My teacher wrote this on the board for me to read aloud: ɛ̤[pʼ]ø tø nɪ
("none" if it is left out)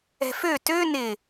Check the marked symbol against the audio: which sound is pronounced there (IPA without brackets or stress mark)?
f